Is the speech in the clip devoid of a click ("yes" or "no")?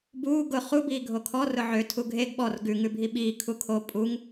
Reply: yes